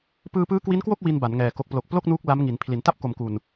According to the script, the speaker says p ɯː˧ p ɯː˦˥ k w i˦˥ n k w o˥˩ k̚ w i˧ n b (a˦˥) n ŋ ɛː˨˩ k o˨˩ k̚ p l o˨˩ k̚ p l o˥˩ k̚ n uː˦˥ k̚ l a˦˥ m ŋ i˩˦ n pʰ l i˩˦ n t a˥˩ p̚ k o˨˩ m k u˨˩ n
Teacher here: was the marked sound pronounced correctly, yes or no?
no